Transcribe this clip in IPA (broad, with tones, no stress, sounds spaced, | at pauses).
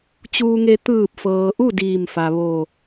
t͡ɕ uː˧ ŋ e˧ t̪ ɯː˧˩ p̚ f ɤː˩ ʔ u˥˨ d iː˧˩ m f a˩ ʋ o˧˩